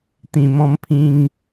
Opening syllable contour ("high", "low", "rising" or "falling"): low